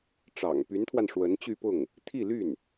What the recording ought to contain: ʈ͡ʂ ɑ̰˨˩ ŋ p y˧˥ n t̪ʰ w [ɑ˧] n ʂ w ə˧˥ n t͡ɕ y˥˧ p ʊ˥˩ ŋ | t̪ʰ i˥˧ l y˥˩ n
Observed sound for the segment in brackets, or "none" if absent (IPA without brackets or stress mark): a˧